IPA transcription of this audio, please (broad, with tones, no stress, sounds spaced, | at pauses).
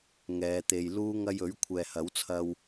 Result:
ŋ ɛː˨˧ t̪ e˨ j l uː˥ ŋ ɐ˧ j ɵ˨˥ ɥ kʷʰ ɛː˨ h ɐ˨˥ w t͡sʰ ɐ˧ w